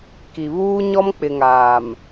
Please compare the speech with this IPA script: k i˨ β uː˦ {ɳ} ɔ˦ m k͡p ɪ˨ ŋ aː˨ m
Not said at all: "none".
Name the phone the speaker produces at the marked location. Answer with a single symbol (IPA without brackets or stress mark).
ɲ